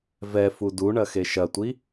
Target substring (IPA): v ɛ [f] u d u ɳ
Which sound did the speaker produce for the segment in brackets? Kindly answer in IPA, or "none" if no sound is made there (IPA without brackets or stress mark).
f